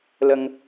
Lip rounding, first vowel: unrounded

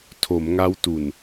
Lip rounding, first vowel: rounded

